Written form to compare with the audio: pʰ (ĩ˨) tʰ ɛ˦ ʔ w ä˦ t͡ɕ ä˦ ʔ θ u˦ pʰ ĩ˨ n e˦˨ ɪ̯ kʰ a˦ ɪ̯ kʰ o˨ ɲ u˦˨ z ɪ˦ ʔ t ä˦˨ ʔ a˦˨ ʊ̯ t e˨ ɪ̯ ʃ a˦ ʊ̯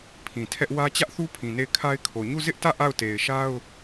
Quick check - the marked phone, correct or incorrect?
correct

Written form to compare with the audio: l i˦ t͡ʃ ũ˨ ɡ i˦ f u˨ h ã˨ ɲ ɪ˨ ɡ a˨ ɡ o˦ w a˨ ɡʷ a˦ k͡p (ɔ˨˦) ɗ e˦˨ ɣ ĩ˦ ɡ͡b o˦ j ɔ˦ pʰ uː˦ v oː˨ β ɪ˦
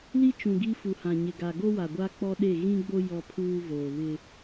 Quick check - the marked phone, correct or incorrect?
incorrect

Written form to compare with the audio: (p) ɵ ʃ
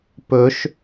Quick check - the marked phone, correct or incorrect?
correct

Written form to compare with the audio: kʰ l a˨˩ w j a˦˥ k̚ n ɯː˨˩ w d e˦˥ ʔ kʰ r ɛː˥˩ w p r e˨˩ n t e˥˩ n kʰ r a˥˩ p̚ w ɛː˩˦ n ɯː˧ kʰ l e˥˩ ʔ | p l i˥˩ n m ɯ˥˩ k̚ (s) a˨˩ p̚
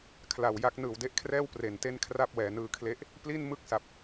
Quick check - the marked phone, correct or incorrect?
correct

